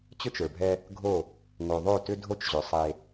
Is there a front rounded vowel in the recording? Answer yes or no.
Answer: yes